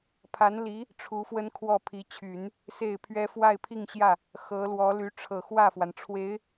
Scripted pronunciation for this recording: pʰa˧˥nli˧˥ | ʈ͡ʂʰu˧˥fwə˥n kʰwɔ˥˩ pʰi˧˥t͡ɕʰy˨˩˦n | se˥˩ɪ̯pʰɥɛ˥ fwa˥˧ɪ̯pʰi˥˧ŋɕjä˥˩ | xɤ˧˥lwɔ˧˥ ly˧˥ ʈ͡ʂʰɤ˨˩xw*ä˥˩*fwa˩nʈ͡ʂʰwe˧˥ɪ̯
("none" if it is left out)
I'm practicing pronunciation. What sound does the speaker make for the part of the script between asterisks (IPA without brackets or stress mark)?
ä˥˩